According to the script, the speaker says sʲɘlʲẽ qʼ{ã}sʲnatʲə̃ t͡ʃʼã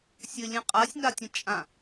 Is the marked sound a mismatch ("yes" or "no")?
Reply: yes